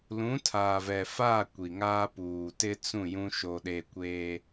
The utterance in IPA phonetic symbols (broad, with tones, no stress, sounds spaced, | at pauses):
l ũ˨˦ tʰ aː˨ v ɛ˨ f aː˦˨ kʷ i˨ ŋ aː˦ p uː˨ t ɪ˦ t͡s ũ˦˨ j ũ˦ ʃ o˦ ɗ e˦ kʷ eː˦